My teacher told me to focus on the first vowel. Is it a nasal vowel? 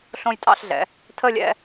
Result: yes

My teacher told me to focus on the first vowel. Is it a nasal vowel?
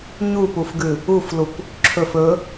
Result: no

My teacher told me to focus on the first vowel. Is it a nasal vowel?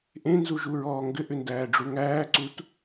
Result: yes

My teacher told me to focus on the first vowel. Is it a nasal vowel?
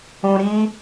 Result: yes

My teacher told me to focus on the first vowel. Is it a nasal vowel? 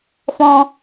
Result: yes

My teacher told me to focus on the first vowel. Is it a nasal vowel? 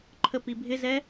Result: no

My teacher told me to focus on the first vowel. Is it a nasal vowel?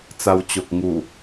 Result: no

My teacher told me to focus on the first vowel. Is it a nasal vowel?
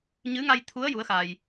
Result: no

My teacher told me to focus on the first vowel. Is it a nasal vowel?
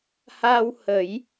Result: no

